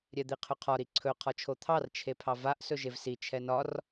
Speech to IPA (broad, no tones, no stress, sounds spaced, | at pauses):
ɾʲ ɛ d̪ i qʰ ɵ qʰ ɒ ɾ i ǀʰ ɵ qʰ ɒ t͡ʃʰ o t̪ʰ ɑ r t͡ʃʰ e pʰ ɑ v a ʔ s ɵ ʒ e v s i t͡ʃʰ ɛ n ɒ r